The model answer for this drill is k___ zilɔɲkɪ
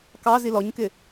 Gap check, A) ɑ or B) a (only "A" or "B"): A